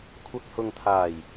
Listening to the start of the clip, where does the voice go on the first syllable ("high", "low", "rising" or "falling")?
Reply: low